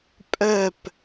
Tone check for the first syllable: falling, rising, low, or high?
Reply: falling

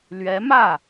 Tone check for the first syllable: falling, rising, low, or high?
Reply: rising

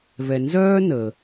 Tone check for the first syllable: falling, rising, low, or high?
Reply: low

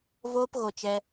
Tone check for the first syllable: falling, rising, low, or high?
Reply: high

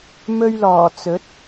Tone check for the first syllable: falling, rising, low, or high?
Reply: high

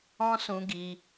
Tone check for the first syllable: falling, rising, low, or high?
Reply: high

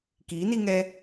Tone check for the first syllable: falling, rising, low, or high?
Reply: rising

